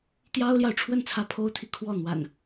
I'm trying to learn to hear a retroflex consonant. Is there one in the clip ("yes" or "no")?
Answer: yes